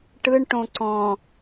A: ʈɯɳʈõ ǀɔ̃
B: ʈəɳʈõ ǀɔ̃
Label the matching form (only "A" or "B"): A